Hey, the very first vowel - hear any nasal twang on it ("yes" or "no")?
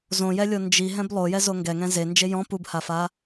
yes